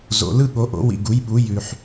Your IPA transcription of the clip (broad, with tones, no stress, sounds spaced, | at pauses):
z o̰˨ l ɯ˥˧ ɠ o˨˦ ʔ o̰˨˦ w ḭ˨ ɡ u˨˦ j ɓ u˨˦ j ʉ˨ ħ